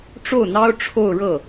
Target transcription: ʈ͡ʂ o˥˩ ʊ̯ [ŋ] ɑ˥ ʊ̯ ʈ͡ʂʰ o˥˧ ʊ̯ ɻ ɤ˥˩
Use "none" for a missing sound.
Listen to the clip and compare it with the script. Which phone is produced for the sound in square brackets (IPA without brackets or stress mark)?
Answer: n̪